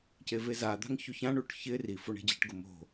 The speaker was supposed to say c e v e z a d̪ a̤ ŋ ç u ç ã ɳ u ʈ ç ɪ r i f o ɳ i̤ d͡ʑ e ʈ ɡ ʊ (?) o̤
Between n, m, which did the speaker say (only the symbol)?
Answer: m